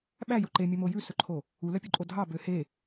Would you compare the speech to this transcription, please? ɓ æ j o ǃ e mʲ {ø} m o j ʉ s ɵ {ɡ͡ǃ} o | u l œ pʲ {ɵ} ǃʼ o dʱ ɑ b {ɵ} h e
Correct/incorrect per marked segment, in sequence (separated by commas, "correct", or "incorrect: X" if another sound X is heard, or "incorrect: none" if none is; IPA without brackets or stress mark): incorrect: ɵ, incorrect: ǃʰ, incorrect: o, incorrect: ø